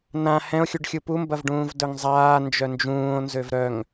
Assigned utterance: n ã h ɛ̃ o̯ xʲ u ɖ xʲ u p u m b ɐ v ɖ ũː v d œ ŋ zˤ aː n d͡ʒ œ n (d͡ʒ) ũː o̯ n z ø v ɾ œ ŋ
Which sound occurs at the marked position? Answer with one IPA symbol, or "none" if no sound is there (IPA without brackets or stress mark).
d͡ʒ